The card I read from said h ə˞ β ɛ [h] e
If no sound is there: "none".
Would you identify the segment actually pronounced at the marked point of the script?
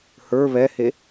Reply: h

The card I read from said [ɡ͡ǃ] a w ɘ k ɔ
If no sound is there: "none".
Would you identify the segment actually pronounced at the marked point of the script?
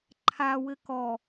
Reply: ǃʰ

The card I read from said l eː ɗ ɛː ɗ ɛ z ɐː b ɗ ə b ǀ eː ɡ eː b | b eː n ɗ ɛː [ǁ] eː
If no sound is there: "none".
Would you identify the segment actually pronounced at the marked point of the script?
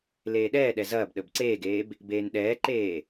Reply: ǃ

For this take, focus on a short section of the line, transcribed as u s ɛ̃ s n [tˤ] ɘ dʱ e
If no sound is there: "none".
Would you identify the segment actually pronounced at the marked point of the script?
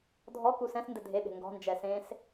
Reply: d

